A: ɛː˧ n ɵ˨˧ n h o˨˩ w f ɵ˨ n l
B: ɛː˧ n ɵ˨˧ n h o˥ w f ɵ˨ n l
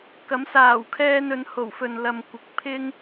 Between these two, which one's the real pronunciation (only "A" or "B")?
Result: A